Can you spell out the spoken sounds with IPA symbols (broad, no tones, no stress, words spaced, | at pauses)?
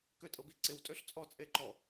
køtʼɤbiǀɪw tʼøɬt͡sʼɔ t͡sʼeǃɔ